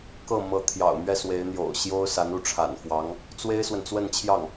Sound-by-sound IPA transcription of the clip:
kɤ˥˩ mɤ˧˥ t̪ʰjɑ̰˨˩ʊ̯mɥɛ˥˩ swe˧˥ɪ̯n̪jo̰˨˩ʊ̯ɕjo˥ʊ̯ sa˧˥nu˥˩ ʈ͡ʂʰa̰˨˩nfwɑ˧˥ŋ | t͡swe˥ɪ̯swə˨n t͡swə˥˧nt͡ɕʰjɑ˥˩ŋ

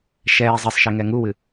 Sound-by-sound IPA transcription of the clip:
ʃɛː zˤesˤʃe ŋɛŋuwɨ

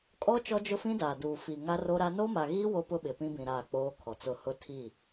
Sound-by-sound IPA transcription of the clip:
kʼɔ˦ t͡ʃɔ˦d͡ʒʊ˦fĩ˦daː˨ duː˨fi˨ ŋa˦ ro˦ɾa˦ no˦ma˨ɣiː˦ wo˦ pʊ˦ ɓɪ˨pĩ˦bĩ˨ ɾaː˦˨k͡poː˦kʰɔ˨t͡sʊ˦˨ hʊ˦tʰi˦˨

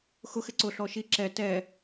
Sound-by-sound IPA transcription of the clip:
xʊx ɪǀʊ ɬɔʃi ǁɛ tɛ

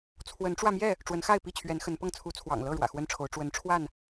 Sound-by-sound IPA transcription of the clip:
t͡sʰwə˨˦nʈ͡ʂwä˧mjɛ˥˨ | ʈ͡ʂwə˨˦nxa˥˨ɪ̯pi˥˨t͡ɕʰɥɛ˨˦n xə˨˦npɤ˥˨ŋ t͡sʰu˨˦t͡sʰwɑ̰˨˩ŋlɤ˥˨ ɻwä̰˨˩xwə˦nʈ͡ʂʰo˨˦ʊ̯ ʈ͡ʂwə˨˦nʈ͡ʂʰwa˥˨n

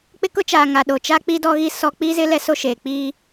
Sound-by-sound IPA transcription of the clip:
k͡pɪ˦kʊ˦t͡ʃaː˨ ŋa˨ɗo˨t͡ʃa˦k͡pi˦ dɔ˦ɣi˦sɔ˦ k͡piː˦zɪ˦ lɛ˦so˦ʃeː˨ k͡piː˦

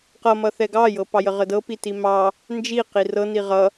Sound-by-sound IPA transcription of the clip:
qʌmʌθɛ ɡɑjɤpɑjə ʁədɤpi timɑ | nd͡ʒi qirɤ niʁʌ

